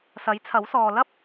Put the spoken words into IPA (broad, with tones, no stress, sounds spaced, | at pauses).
s ɐ˨˥ j t͡sʰ ɐ˨˥ w s ɔː˨ l ɐ˥ p̚